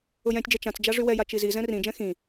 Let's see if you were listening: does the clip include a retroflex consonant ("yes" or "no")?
yes